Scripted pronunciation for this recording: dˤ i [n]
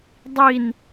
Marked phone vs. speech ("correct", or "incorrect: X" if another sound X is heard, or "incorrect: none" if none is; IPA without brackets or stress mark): correct